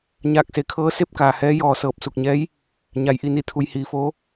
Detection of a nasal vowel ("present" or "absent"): absent